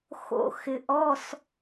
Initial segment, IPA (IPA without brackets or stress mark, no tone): x